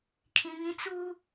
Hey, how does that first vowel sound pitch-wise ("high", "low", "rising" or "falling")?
high